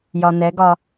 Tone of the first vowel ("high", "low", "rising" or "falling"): low